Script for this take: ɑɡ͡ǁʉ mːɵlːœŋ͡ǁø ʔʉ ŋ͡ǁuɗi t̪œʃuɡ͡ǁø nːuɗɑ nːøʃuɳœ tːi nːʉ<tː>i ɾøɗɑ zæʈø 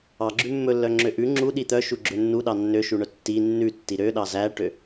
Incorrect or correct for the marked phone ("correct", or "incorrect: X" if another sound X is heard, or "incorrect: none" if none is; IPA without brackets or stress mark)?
correct